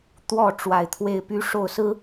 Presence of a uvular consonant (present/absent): absent